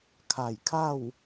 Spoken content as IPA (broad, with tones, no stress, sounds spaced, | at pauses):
kʰ a˧˩ j kʰ a˥˨ w